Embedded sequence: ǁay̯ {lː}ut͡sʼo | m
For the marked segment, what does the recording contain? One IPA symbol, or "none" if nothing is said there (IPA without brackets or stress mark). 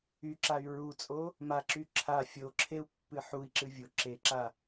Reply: ɹ